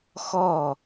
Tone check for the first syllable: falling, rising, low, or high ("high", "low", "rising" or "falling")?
falling